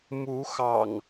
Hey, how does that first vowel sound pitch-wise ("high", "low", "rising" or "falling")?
rising